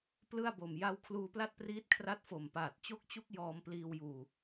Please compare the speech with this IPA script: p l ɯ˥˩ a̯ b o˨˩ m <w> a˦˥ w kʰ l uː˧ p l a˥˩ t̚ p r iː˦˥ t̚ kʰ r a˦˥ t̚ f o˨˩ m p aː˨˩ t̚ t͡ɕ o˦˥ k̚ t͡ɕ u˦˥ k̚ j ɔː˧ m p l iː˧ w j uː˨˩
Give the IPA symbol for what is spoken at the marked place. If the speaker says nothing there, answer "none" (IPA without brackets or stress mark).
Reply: j